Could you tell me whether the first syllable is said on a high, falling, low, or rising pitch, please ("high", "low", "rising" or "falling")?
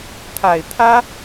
low